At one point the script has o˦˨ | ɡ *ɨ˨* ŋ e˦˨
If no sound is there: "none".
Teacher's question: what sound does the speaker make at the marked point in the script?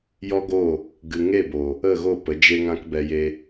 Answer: ɨ˨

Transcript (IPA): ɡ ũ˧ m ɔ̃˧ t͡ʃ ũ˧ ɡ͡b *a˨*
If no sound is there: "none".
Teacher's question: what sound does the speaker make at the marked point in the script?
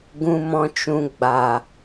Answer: a˨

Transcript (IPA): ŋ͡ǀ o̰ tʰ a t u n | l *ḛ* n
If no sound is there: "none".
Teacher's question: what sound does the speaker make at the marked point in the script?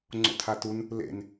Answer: ḛ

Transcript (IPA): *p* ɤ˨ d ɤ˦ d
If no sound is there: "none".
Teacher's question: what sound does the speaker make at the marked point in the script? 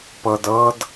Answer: p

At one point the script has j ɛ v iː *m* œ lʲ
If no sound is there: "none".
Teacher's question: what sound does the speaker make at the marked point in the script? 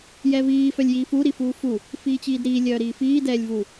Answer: f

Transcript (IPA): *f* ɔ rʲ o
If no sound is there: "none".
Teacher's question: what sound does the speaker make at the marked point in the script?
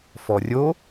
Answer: f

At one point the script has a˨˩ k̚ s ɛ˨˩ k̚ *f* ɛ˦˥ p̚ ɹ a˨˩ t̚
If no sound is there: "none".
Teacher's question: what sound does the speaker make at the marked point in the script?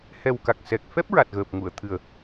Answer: f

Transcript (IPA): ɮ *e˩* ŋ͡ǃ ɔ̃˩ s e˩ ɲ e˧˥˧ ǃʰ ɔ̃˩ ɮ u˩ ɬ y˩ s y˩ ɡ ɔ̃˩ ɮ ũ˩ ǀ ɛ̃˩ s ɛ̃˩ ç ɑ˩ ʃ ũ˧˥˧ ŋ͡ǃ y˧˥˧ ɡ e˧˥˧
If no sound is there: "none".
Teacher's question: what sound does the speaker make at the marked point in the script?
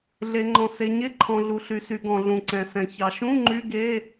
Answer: e˩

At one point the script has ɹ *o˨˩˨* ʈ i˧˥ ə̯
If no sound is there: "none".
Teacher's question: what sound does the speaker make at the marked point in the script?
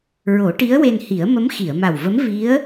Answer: o˨˩˦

